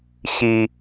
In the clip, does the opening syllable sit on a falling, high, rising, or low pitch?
low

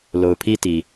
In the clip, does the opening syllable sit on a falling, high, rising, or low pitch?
low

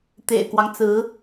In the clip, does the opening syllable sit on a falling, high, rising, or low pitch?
low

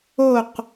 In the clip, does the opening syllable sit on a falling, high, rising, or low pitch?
falling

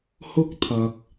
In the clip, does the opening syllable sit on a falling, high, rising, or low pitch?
high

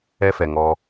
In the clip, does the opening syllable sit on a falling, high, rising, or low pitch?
high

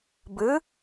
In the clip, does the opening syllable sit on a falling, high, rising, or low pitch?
rising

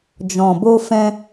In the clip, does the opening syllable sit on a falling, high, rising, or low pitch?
low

